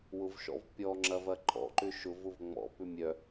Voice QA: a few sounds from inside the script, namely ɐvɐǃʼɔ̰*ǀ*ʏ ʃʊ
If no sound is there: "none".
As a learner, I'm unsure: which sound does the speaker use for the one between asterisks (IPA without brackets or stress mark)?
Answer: ǃ